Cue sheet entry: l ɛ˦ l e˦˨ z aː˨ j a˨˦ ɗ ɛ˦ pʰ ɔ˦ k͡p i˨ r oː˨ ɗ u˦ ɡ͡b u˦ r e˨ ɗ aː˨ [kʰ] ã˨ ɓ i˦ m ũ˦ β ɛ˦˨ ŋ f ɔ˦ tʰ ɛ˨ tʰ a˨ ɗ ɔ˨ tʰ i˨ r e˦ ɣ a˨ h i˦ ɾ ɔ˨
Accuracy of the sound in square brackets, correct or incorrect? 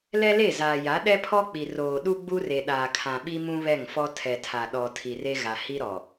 correct